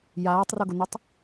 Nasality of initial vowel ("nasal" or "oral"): oral